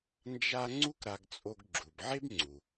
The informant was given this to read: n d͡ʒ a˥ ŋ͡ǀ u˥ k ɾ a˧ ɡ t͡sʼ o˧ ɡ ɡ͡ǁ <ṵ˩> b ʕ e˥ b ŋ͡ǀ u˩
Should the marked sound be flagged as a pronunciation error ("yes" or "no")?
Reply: yes